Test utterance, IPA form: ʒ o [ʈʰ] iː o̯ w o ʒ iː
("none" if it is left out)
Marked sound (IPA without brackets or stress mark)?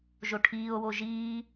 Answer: ʈʰ